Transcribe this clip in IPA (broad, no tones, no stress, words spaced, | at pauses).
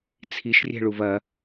t͡sʰiʃrʲɛ̤ɭuv ɐ